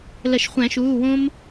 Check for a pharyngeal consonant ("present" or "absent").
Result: absent